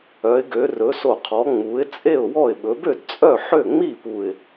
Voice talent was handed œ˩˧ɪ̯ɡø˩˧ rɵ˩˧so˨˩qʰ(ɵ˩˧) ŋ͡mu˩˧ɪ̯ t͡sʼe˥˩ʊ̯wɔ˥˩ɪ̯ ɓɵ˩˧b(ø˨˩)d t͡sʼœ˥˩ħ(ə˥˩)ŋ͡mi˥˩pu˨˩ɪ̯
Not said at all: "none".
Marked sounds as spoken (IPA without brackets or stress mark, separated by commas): ɔ˩˧, ø˥˩, ø˥˩